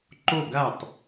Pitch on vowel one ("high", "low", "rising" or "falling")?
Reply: falling